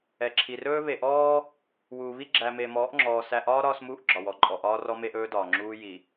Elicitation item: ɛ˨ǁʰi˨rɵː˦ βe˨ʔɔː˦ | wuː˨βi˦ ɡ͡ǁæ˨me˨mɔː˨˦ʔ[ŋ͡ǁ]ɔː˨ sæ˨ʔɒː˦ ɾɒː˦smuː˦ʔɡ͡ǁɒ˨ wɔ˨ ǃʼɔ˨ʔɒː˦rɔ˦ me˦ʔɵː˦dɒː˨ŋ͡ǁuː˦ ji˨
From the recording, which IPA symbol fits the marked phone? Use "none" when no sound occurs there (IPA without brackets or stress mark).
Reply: ŋ͡ǁ